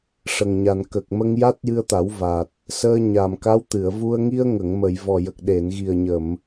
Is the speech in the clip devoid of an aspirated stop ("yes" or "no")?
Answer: yes